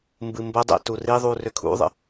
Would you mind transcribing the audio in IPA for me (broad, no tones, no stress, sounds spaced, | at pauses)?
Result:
m b ɨ m b ə dˤ æ̰ t u r i ðˤ u r ʏ kʰ ṵ ðˤ ə̰